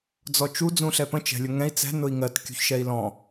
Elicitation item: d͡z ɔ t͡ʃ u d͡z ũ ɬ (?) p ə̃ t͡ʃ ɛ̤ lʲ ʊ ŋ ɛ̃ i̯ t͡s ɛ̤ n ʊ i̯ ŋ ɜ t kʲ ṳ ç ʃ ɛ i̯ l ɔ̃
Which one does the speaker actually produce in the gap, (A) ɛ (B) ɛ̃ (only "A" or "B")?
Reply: A